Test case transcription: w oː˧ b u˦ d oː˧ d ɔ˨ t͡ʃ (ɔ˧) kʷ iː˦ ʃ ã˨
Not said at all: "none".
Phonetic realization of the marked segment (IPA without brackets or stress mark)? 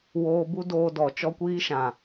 ɔ˦